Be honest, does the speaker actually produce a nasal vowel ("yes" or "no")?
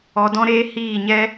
yes